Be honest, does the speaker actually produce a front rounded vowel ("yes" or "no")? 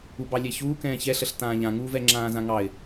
no